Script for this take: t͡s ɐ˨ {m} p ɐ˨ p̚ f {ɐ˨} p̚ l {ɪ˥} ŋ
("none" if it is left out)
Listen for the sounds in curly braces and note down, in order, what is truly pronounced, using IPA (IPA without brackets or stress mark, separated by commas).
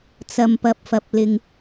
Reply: m, ɐ˨, ɪ˨